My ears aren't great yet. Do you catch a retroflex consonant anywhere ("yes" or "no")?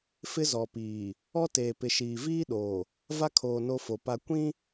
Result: no